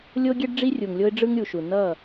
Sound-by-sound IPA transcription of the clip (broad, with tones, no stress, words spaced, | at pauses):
lʲo˦ɡʲɛ˦ɖ ɖ͡ʐi˦rʲu˨ŋlʲo˦ɪ̯ ɖ͡ʐɯ˦ŋɾʲu˨ʃu˨ nʌ˦˨